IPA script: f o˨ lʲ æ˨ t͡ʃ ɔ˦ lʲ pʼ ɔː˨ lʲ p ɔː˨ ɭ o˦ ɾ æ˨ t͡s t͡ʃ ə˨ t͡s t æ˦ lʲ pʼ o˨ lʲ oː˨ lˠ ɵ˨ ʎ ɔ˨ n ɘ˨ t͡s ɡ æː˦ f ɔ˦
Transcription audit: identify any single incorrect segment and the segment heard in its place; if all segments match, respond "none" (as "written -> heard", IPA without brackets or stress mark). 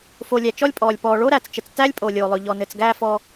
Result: none